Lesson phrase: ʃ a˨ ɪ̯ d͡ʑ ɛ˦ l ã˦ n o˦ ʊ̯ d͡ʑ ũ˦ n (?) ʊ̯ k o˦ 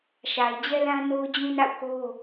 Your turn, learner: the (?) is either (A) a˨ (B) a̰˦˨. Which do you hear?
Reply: B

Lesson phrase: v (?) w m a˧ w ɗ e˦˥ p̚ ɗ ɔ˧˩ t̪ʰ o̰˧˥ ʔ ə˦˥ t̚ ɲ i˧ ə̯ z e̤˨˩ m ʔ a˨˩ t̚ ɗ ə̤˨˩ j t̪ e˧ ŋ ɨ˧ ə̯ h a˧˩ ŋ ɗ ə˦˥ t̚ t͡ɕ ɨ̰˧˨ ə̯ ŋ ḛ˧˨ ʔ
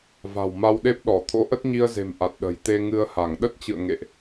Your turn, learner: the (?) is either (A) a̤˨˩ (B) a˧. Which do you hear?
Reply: A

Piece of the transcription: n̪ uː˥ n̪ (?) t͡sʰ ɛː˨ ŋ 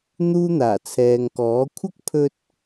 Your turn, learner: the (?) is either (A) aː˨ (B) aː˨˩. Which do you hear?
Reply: B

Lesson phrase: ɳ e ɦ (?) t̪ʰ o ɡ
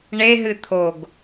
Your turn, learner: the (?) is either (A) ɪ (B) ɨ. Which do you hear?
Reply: B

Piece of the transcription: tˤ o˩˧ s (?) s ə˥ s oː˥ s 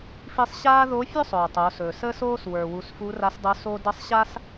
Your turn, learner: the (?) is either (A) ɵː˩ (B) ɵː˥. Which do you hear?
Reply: A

